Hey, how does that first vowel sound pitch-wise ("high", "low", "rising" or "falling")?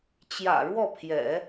low